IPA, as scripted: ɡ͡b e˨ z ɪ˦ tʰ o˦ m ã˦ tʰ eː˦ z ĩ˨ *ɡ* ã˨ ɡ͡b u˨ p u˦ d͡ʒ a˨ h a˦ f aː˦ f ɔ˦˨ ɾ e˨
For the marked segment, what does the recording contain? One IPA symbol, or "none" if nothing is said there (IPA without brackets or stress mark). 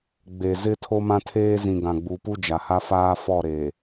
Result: ɡ